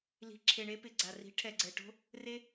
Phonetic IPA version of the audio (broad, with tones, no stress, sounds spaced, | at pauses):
l i̤˧ ǁʰ e˨ ɳ e˦ p ɪ˨ ɡ͡ǀ a˨ r i̤˨˦ ʈʰ ɛ˨ ɡ͡ǀ ɛ˨ ʈ o̤˦ | r e˦